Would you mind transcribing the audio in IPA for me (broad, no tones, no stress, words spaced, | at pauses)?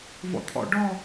vɔ̰t̪ʰɔ̰ ɖɔ